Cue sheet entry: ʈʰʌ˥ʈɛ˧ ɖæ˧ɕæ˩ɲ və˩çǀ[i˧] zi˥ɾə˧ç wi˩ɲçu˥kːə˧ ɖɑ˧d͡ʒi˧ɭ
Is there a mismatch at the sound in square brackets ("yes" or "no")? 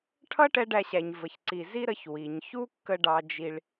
yes